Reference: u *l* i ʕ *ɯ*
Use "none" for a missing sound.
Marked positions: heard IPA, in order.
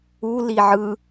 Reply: l, ɯ

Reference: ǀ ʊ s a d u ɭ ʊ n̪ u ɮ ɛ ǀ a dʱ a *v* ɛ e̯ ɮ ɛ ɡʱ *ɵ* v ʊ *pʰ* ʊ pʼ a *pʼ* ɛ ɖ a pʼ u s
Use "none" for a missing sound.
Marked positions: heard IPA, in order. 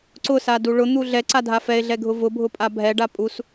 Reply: f, ʊ, bʱ, bʱ

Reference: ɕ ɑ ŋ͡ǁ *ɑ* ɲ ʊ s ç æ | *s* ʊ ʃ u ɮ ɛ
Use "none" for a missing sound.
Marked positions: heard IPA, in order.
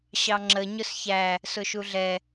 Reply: ə, s

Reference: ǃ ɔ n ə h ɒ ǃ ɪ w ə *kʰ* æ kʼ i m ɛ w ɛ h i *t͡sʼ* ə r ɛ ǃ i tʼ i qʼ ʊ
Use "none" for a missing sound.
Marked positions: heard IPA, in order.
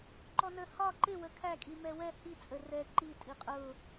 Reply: kʰ, t͡sʼ

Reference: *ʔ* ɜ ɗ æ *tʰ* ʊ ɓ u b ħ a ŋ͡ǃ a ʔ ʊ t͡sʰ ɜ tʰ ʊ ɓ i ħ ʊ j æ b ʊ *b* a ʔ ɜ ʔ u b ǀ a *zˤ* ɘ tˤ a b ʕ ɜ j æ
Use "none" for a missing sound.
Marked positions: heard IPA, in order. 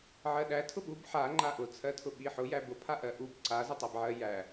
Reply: ʕ, tʰ, pʰ, z

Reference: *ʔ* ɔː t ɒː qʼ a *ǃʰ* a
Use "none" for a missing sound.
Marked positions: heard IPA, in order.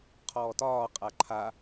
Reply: qʰ, ǃʰ

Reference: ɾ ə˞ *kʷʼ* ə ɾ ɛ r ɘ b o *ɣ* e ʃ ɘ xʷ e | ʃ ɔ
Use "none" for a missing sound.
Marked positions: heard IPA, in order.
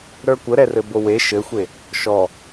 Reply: kʷ, w

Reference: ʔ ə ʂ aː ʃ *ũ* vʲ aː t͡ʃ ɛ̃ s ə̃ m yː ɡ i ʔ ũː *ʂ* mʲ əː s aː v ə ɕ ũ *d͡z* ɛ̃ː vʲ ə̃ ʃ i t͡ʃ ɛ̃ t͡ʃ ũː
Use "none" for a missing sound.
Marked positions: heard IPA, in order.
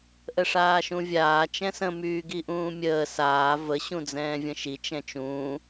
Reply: ũ, none, d͡z

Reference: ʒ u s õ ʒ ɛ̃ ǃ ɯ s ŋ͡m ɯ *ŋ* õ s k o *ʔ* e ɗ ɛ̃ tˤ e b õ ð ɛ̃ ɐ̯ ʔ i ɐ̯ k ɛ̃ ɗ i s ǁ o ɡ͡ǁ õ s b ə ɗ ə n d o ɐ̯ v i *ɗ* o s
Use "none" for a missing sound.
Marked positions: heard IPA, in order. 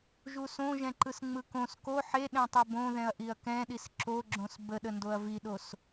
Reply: k, ħ, ɗ

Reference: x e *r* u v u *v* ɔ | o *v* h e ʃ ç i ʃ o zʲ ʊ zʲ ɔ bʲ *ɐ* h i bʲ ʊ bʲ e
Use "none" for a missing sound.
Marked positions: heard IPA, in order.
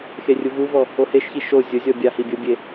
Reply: rʲ, v, none, a

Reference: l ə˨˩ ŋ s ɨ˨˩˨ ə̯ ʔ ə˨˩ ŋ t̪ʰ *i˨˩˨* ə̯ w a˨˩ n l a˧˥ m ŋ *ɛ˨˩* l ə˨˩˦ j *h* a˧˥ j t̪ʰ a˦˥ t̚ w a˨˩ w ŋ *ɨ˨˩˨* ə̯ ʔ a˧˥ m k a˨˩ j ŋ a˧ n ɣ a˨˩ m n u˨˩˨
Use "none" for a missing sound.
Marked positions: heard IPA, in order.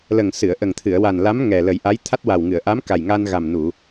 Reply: ɨ˨˩˨, ɛ˨˩, ʔ, ɨ˨˩˨

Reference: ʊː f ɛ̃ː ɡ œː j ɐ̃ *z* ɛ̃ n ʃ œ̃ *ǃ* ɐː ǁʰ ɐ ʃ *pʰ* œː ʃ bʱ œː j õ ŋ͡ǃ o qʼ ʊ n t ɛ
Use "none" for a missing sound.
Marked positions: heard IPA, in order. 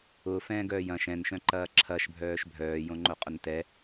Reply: ʃ, ǃ, bʱ

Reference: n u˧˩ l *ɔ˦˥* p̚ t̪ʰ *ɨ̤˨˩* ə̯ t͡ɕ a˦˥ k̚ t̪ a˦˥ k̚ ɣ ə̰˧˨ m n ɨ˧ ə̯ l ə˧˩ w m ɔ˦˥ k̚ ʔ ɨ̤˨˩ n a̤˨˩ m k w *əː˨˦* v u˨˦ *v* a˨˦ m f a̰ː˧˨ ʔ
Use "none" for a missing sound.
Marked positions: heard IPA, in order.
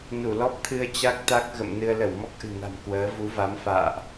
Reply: ɔ˦˥, ɨ˧, əː˨˦, v

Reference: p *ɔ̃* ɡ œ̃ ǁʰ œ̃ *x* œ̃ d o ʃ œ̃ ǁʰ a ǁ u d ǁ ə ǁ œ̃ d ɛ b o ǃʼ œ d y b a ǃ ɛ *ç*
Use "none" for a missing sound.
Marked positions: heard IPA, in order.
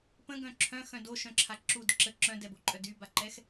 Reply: ə̃, x, x

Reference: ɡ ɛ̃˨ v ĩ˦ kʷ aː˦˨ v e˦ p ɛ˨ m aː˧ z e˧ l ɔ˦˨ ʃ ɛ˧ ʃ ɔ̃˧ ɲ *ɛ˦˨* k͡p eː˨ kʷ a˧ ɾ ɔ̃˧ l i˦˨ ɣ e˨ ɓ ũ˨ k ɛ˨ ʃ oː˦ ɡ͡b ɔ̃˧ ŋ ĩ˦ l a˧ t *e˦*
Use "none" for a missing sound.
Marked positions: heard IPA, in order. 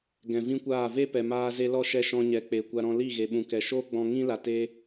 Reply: ɛ˨, e˦

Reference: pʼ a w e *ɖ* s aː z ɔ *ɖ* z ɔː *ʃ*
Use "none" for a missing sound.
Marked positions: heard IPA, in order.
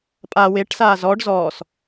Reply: ʈ, ɖ, s

